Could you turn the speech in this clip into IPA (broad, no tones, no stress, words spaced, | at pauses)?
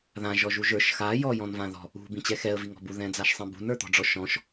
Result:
ðã ʒɔʒuʒə˞ʃ xa jɔ jɔ̃nvãðɔ̤ | ṳ bĩt͡ɕɛxɛə̯ viŋɔ̤bu ðɛ̃d͡zaʃsˤĩbṳn ə˞t̪ɔ̤ɖ͡ʐɔʃɔ̃ʃ